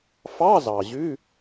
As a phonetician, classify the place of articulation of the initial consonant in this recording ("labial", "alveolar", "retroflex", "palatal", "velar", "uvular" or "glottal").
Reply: labial